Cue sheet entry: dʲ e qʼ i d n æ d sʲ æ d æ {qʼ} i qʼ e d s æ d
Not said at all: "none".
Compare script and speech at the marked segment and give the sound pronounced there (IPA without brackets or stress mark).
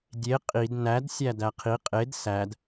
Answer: qʰ